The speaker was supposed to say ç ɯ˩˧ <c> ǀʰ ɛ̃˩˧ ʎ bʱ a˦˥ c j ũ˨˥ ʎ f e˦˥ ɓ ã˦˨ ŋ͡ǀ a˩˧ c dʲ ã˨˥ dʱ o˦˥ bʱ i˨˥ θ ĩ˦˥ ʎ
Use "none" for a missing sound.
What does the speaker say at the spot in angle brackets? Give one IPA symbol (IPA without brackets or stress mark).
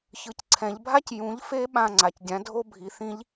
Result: c